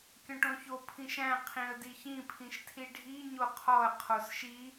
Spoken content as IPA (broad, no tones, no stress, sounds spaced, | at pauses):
kʲ ɔ̃ ʈ õ ç o pʰ ĩ ʃ æ̃ qʰ ĩ ə̯ d i ç ĩ pʰ ĩ ʃ tʰ i ɖʱ i ɲ o qʰ ɔ ə̯ qʰ o s ʃ i